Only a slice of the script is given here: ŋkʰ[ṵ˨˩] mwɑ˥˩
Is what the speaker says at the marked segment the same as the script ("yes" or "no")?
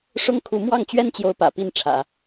no